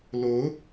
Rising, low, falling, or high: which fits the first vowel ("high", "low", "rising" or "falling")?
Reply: rising